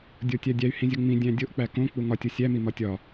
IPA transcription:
dʲ o tʲ æ dʲ æ y̯ h ĩ zʲ o ŋ͡m ĩ dʲ æ̃ dʲ o ʔ k͡p æ k õ k͡p u ŋ ɒ tʲ o sʲ æ m i m ɒ tʲ ɒ

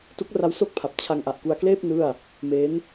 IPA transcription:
t u˦˥ k̚ r a˦˥ w s o˥˩ k̚ pʰ a˨˩ p̚ t͡ɕʰ a˧ ŋ ʔ a˨˩ ʔ k u˧ a̯ k l eː˥˩ p̚ n ɯ˥˩ a̯ | m e˦˥ n

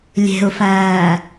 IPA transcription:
lʲ e̤ ʊ̯ f æː

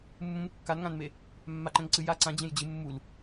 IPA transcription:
mː ũ m kː a n ŋ ã n m e | mː a ǃ ɛ̃ ŋ ǀ ɨ j a ǀ ã d͡ʑ ẽ j d͡ʑ ɨ mː u l

